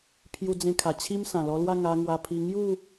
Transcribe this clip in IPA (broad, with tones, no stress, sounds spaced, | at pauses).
pʰ j u˧ d͡z ẽ˧ kʰ a˨˩ t͡ɕʰ i˦ m s ã˨˩ l ɔ˧ l w a˥˧ ŋ a˧ ŋ w a˧ pʰ i˧ ŋ j u˥˧